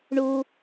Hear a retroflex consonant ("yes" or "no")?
yes